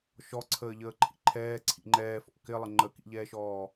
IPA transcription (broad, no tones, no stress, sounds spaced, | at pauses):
ʃ ɔ ǀʰ əː ʎ əː ǃʰ ḭ ǃʰ ɛː ǀʰ ḭ ŋ͡ǃ ɛː f ɔ̰ k ɪ lˠ ɪ ŋ͡ǃ ə k ḭ ʎ ɛː ʃ ɔː